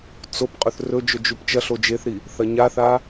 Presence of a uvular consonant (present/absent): present